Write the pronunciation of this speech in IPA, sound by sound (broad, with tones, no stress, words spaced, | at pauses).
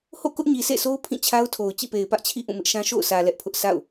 ho̰˦˨kʊ˦ʔɲi˨ sḛ˦˨so˦ʊ̯ pʰĩ˦˨t͡ɕʰa˦ʊ̯tʰo˨ʊ̯ t͡ɕḭ˦˨pe˨ɪ̯pä˦ʔt͡ɕʰḭ˦˨ ʔũ˦˨mɪ˦ʔʃã˦ ʃo̰˦˨ʊ̯sʰä˨ lɛ˦ʔpʰʊ˦ʔ sa̰˦˨ʊ̯